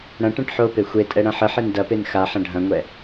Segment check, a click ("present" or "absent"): absent